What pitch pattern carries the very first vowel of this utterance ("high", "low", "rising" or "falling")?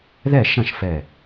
falling